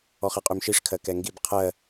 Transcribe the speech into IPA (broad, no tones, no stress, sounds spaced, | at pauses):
ɔ χ ɛ qʼ y m ʃ i ʂ kʰ ɜ k ɛ ŋ ɡ i b qʰ ɜ